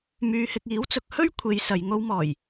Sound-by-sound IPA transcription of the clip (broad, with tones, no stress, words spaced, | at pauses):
myː˧hɪ˧k̚ iː˨˥wt͡sʊ˨˥k̚hɵ˥ɥ kʷʰe˨˧j sɐ˨˧j ŋo˧wmɔː˨˩j